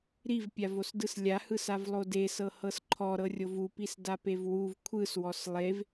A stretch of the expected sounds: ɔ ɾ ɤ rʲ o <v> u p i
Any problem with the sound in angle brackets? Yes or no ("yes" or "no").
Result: no